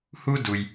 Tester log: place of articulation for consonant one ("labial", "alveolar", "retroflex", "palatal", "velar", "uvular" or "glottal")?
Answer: glottal